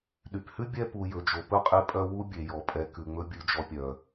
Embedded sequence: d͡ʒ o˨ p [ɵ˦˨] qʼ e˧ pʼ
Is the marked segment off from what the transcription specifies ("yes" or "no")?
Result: no